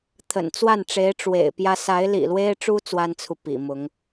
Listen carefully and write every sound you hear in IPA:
t̪ʰə̰˨˩n t͡swa˥˩nʈ͡ʂe˧˥ɪ̯ ʈ͡ʂwḛ˨˩ɪ̯pjä˥ sa˧˥ɪ̯lḭ˨˩lwe˥ɪ̯ʈ͡ʂu˥ t͡swa˥nt͡sʰu˨ pḭ˨˩mʊ˧˥ŋ

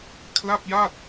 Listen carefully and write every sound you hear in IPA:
kʰla˥˩p̚ja˥˩t̚

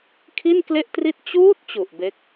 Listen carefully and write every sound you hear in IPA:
kʰi˥˩nkle˥˩ʔtri˥˩t̚ t͡ɕuː˦˥t̚ t͡ɕu˨˩ʔbe˦˥k̚

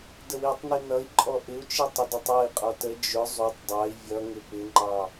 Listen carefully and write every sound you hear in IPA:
dəwitˤni nʌi̯ǃʼɔ ʔɪu̯t͡ʃi tˤɪdʌtˤɔi̯qʼɔ tə d͡ʒʊ zˤutˤ dˤɑi̯ vʲʌŋɪ pɪŋ͡ǃɑ

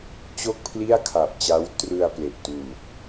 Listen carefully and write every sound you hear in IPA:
t͡ɕo˥˩k̚pʰli˥˩a̯kʰa˨˩p̚t͡ɕa˦˥w trɯ˧a̯ ple˨˩ʔtuː˨˩k̚

